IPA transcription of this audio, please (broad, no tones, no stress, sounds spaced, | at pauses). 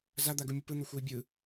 z a d̪ a ɡ u mʲ ʌ p ɯ n̪ o xʷ ʌ i̯ bʲ ɯ